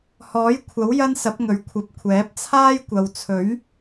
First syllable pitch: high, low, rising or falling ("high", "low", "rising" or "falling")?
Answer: rising